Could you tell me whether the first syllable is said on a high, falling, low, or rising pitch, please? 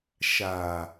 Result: low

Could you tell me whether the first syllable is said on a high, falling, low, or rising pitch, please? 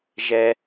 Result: high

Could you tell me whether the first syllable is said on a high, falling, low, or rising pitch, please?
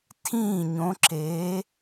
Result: falling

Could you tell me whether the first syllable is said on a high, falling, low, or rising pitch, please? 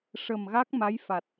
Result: low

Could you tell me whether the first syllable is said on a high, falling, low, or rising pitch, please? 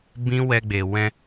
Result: high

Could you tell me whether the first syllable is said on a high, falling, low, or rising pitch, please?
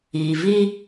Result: low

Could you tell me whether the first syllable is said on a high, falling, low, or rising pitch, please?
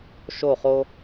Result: falling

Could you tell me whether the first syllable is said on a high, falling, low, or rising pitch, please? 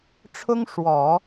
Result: high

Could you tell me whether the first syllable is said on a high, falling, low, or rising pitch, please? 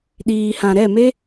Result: low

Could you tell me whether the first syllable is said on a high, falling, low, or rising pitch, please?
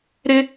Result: high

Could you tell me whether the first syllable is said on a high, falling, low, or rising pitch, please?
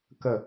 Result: low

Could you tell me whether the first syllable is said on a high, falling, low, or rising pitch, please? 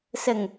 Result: low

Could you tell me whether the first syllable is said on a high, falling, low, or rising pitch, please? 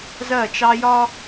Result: falling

